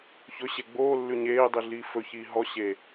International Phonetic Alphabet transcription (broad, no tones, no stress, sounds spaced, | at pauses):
ç ɵ ɕ e ɡ͡b oː lː ʉ ɲ eː dˤ i ɮ iː f ɵ ç iː ɦ ɔ ɕ e